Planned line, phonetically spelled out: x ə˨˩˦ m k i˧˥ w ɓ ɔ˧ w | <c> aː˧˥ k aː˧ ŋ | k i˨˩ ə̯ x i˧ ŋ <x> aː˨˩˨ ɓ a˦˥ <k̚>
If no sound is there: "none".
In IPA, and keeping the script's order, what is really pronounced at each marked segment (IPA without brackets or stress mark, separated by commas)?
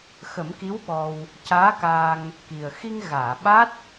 c, ɣ, t̚